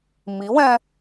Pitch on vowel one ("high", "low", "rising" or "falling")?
rising